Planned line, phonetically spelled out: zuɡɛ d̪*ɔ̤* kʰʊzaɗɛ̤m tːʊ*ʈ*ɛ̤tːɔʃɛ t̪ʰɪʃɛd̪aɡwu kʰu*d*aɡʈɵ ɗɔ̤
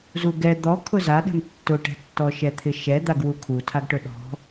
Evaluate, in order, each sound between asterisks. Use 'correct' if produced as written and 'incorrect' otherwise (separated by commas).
incorrect, correct, incorrect